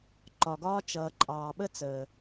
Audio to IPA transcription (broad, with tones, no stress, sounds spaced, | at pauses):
ǃ ɒ˨ ɡ ɒː˦ t͡ʃ ʌː˨ ǃʼ ɑː˨ ɓ ə˦ t͡s əː˨